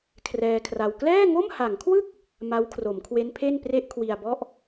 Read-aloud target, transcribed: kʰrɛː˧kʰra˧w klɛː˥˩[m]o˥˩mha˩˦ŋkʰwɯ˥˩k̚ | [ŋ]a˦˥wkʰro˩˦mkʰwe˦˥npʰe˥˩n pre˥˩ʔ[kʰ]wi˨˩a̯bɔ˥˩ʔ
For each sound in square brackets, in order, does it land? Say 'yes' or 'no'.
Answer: no, no, yes

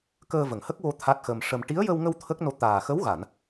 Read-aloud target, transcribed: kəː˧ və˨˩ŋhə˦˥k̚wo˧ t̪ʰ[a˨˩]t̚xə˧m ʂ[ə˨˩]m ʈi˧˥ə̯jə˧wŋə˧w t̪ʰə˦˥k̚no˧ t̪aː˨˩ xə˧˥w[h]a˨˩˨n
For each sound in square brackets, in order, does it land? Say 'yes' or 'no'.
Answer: no, no, no

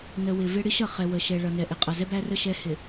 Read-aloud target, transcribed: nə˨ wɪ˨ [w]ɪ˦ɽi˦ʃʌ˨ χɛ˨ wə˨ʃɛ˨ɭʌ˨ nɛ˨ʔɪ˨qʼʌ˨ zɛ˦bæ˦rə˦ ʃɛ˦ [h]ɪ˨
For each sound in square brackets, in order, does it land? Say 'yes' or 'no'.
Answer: no, yes

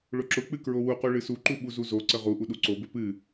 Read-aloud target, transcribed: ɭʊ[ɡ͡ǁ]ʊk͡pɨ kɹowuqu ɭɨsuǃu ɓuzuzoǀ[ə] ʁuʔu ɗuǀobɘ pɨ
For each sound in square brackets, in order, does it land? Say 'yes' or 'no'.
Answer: no, yes

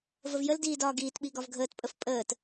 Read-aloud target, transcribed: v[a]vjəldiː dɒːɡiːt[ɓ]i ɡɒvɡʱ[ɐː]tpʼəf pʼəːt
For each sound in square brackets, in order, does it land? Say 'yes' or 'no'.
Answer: no, yes, no

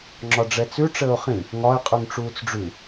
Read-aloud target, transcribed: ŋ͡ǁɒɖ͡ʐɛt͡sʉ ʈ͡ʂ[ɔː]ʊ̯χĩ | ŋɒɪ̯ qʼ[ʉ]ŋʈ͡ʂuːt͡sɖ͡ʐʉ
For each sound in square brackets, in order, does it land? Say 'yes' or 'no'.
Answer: no, yes

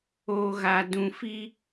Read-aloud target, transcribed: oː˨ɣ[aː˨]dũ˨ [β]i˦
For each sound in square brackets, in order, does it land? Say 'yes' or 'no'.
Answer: yes, no

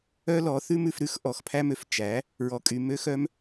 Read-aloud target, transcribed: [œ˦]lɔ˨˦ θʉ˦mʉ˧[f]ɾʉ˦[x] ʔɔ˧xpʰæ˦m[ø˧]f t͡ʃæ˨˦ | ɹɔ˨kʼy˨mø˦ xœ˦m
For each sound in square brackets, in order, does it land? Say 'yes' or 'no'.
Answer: yes, yes, yes, no

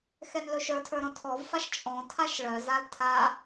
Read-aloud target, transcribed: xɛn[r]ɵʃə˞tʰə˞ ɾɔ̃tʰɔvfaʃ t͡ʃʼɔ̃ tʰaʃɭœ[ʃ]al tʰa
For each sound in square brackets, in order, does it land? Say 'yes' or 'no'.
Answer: no, no

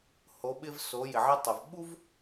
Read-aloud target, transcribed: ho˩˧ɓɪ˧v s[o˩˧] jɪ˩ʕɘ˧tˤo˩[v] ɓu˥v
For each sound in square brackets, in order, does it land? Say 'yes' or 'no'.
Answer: yes, yes

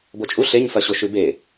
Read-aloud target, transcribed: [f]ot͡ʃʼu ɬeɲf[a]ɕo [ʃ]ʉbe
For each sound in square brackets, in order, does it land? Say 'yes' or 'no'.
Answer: no, no, yes

